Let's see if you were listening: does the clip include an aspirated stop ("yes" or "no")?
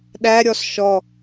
no